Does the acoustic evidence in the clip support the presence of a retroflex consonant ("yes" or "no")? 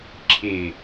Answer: no